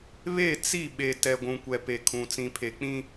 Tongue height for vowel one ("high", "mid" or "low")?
mid